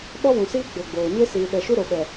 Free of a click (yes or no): yes